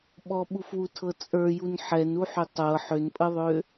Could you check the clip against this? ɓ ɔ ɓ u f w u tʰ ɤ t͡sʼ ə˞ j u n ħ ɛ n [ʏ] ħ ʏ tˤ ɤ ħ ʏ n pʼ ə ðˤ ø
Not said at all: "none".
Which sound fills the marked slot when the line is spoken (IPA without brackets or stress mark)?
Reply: u